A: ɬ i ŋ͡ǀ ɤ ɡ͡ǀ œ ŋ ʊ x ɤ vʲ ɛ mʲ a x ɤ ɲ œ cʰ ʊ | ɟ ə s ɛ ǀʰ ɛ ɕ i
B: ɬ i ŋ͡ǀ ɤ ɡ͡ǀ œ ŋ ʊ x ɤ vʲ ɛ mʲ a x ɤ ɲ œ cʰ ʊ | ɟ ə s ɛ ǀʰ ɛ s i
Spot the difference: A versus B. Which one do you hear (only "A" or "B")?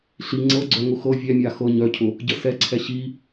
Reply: A